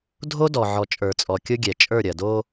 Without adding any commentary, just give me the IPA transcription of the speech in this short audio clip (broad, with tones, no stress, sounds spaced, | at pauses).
dʱ o˦ d ɔ˨ ʕ ɔ˨ t͡ʃʼ ə˞˨ t͡sʼ ɔ˨ kʲ ʊ˦ ɡʲ ɛ˨ t͡ʃʼ ə˞˦˨ ɾʲ ɐ˨ d o˦